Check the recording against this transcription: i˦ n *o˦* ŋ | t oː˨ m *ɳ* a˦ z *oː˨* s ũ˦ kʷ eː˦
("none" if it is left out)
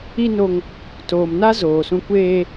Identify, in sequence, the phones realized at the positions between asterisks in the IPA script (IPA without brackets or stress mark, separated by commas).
o˦, n, oː˨